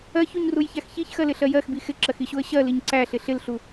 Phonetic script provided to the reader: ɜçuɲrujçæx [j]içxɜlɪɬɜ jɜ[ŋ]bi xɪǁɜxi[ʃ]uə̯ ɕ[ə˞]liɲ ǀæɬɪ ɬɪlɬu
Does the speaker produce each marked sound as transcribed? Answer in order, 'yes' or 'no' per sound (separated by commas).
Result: no, no, no, no